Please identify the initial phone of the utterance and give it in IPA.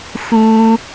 x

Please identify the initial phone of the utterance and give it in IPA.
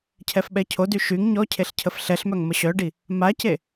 cʰ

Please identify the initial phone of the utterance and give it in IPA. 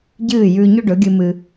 ɟ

